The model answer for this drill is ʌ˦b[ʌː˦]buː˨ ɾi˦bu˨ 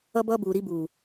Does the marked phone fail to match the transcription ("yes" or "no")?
no